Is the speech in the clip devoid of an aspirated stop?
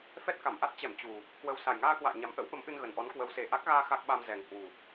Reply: yes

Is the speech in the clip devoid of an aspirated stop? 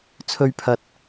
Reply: no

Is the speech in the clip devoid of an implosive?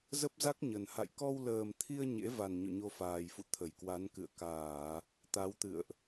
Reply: yes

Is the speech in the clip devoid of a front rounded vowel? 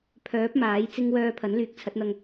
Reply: no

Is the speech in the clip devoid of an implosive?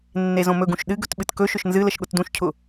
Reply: no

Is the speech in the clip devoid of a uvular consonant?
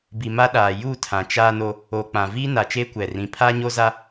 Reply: yes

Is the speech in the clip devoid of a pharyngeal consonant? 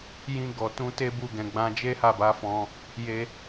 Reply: yes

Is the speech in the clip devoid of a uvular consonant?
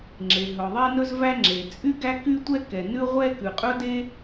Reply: no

